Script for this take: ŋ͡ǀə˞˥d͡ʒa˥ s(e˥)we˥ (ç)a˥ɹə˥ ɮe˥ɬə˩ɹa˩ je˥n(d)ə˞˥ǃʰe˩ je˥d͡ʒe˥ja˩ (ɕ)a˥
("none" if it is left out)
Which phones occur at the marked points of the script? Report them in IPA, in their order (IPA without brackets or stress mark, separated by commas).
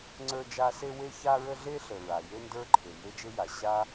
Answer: e˥, ç, d, ɕ